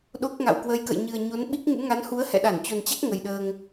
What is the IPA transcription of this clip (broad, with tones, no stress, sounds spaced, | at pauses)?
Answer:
ɗ o˦˥ k̚ ŋ a̰˧˨ w k w ə˧ j k ə̰˧˨ j ɲ ɨ˨˩ ə̯ ɲ o˨˦ n ɓ i˦˥ k̚ ŋ ṵ˧˥ ŋ a˨˦ n h u˨˦ ə̯ h ɛ̰˧˨ ɗ a˧˩ n t͡ɕ o˨˩ n t͡ɕ a˦˥ k̚ ŋ ə˨˩ j ɗ əː˧ ŋ